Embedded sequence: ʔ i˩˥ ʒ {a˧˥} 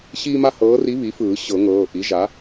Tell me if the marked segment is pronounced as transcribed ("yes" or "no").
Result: no